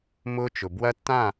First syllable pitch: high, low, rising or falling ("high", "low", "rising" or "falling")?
high